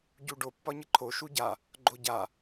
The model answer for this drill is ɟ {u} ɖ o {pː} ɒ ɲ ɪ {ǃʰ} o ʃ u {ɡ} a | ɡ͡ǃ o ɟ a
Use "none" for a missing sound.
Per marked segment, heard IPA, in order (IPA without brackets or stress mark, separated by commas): u, pː, ǃʰ, ɟ